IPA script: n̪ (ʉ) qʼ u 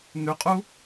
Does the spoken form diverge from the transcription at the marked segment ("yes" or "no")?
no